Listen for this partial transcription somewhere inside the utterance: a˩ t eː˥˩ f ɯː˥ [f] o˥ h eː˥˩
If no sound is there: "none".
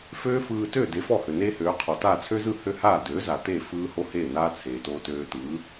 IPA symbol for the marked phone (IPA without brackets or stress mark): h